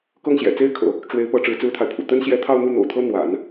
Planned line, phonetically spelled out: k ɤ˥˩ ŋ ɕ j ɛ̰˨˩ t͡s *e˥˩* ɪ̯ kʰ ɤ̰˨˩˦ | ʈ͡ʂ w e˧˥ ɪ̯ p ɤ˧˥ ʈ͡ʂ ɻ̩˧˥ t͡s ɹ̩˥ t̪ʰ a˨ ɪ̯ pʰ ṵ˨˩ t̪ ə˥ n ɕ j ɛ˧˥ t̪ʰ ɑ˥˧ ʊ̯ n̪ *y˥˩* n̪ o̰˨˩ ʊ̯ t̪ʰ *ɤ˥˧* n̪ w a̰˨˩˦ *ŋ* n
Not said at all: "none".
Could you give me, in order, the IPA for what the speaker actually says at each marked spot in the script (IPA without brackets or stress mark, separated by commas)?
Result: e˥, u˥˩, ɤ˥, none